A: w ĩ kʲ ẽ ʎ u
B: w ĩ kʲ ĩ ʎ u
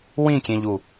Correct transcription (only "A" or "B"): A